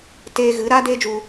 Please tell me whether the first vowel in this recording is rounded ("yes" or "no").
no